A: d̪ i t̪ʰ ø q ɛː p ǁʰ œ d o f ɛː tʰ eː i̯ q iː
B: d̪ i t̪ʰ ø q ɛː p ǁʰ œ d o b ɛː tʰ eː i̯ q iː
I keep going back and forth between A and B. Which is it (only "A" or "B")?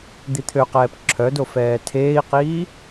A